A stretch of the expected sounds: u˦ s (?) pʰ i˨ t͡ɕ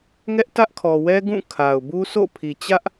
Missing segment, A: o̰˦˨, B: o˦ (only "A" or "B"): A